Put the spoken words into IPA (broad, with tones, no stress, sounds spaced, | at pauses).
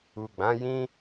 u˨ ɡ͡b ã˨˦ j ĩ˦